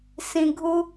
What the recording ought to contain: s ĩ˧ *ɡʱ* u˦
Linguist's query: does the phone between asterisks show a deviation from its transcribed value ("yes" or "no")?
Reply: no